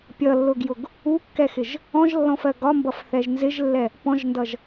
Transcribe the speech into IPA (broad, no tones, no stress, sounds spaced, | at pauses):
pʲ ʌ lː ʊ ɡ j ʊ ɡ | u kː ɛ x ɪ ʒ | ɔ̃ ʒ lː ɔ̃ f ɜ ɡ ɒ m b ʌ f θ ɛ ʒ n z ɪ ʒ lː ɛ | p ɔ̃ ʒ n d ʌ ʒ